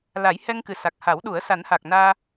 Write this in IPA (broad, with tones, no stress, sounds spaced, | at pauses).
l a˨˩˦ j h ɛ˧ ŋ k ɨ˨˩ s a˨˩ k̚ h a˨˩˦ w ɗ u˨˩˦ ə̯ s a˨˩˦ n h a˨˩ k̚ n aː˧